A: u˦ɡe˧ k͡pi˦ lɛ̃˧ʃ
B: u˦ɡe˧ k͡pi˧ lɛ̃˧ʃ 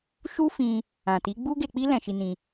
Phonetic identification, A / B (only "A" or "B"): A